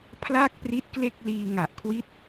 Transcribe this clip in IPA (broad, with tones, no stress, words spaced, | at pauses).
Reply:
pʰla˥˩k̚ pri˦˥t̚kle˥˩k̚ liː˧ŋa˨˩ʔkʰwi˦˥t̚